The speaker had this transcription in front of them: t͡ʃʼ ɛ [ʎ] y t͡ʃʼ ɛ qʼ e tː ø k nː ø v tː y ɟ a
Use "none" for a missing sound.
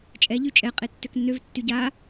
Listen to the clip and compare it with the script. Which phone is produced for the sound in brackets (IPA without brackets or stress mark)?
ʎ